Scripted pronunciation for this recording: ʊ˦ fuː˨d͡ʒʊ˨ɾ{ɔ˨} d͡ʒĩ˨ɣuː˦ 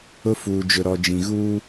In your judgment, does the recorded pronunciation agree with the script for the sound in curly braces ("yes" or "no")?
yes